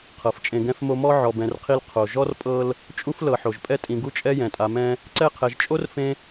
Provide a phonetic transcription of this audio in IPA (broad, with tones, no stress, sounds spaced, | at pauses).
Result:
qʰ ɤ˩ f t͡ʃʼ ẽ˨ ɡ ɛ̃˦ f m o˦ m ɔ˥ ʕ ɔ˨ b ɛ̃˨ r qʰ i˦ l qʰ o˩ ʒ ɔ˥ r pʼ ɤ˦ l | t͡ʃʼ u˥ f l ɤ˨ ħ o˩ ʒ pʼ ɛ˥ tʼ ĩ˨ ɡ u˥ t͡ʃʼ ɛ˥ j ɛ̃˩ tʼ a˨ m ɛ̃˦ | ǀ ɛ˦ qʰ ɛ˨ ʒ t͡ʃʼ o˥ r f ẽ˥